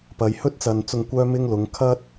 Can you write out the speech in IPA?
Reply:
pɐ˨˧j hɵ˥t̚t͡sɐ˨nt͡sʊ˧ŋ kʷœː˥mɪ˥ŋlʊ˨˧ŋ kʰɐ˥t̚

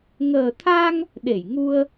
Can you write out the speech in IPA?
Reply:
ŋəː˨˩t̪ʰa˧ŋ | ɗe˧˩jŋu˧ə̯

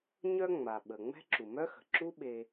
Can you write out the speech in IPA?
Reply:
ɲœ˥ ŋ͡ma˩ɓə˩ ŋ͡mɛ̤˦ǁu˩mœ˦xə̤˩ ǁu˦ ɓe˨

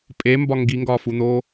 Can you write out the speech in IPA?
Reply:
pʼembɒ ŋɡiŋɡɒːfun̪oː

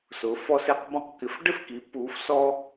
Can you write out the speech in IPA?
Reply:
sʊ˩˥fɔ˥se˥q bɔ̃˥qkɪ˩˥f ɖɪ˥fki˩˥ puː˩˥fsɔ˥

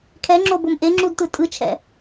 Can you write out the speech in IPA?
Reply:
kʰɛŋ͡ǁobom ʔeŋ͡ǁudtɯ tʼɯt͡ʃʰɛ̰

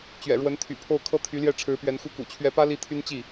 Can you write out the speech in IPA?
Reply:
t͡ɕɥɛ̰˨˩ɻwə˧˥nt̪ʰy̰˨˩pʰo˥˩ʊ̯ kʰɤ˥t̪ʰy˧˥ljɛ˥˩ ʈ͡ʂʰɻ̩˧˥pɥɛ˧˥n xu˥˩ kṵ˨˩t͡ɕʰɥɛ˧˥pä˥ li˥t̪ʰy˥n t͡ɕi˥˩

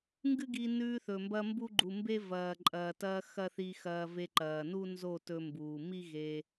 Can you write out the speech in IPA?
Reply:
ŋɡɨ˦ɡi˧ nʉː˧θɵ˨mbɐ˧ mbu˦ɡ͡ǃu˨mbe˦ vɐː˨ǃʼɐː˨tɐː˧ xɐ˦θi˧xɐː˧ ve˧ǃɐː˨ nu˦nzo˦˨tɵ˧mbuː˨ mi˦ɣe˧

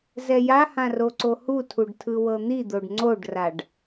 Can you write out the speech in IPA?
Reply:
zɛjahã roǀohutʰuɖ tʰɯwɤn̪id̪oɖ ŋ͡ǀoɖraɖ

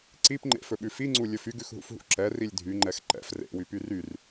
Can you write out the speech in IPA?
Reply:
ǀipŋ͡ǃḛfɵɓʉ fiŋ͡ǀulʲɵf yɡʉxɦṵfɦṵ ǁɛrilʲ dʱyŋ͡ǃɛx ǃɛ̰f rḛwypy ryr

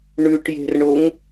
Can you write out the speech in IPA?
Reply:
ɳʉʈje̤rɳoŋ

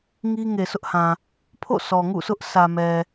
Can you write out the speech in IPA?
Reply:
ŋi˦ŋe˨sʰʊ˦ʔhã˨ | pʰo̰˦˨sʰɔ˨ŋṵ˦˨sʰʊ˦ʔ sʰä˨mɛ˨

